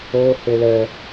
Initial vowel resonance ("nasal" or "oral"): oral